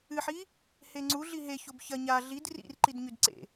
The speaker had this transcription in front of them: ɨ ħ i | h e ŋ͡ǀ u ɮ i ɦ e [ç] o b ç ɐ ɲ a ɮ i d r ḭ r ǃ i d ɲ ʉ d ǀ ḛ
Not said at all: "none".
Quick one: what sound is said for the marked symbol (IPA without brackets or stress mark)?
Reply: ç